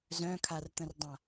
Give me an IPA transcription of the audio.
z œ̃ kʰ a r t̪ ə̃ r dˤ ã

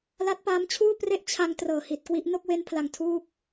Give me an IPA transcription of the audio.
l a˦˥ t̚ p aː˦˥ m t͡ɕʰ uː˥˩ p r e˥˩ ʔ t͡ɕʰ a˧ ŋ t r ɤː˨˩ h i˨˩ t̚ k w i˦˥ ʔ n o˥˩ k̚ w e˦˥ n pʰ l a˨˩ ŋ tʰ uː˥˩ k̚

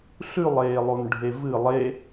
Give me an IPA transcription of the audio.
ɬ ʉ lˠ eː lˠ o n ɖʱ e v ɨ lˠ e

